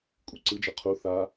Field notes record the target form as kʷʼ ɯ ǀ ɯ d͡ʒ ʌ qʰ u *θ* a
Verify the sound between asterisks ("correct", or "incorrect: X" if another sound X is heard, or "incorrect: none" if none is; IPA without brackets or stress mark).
correct